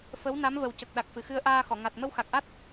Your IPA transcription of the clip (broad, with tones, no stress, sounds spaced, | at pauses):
f ə˧˥ w n a˧˥ m v ə˨˩ w c ə˨˩ k̚ ɗ a˨˩ k̚ f ɨ˨˩˨ x ɨ˧ ə̯ ʔ aː˧ x ɔ˨˩˨ ŋ a˨˩ t̚ m ə˧ w x a˨˩ k̚ ʔ a˦˥ t̚